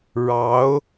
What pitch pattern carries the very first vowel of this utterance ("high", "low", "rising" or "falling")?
rising